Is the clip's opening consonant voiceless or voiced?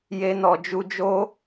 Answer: voiced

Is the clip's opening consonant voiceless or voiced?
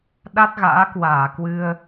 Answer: voiced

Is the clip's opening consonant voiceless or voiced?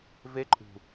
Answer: voiced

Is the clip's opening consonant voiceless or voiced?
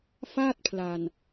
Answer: voiceless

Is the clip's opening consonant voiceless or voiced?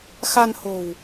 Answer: voiceless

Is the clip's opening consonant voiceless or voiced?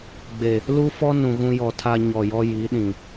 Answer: voiced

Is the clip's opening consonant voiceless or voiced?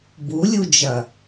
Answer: voiced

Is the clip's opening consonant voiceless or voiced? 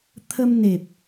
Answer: voiceless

